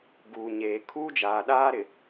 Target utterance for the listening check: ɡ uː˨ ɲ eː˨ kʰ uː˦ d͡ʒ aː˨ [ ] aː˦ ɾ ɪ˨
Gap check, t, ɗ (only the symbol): ɗ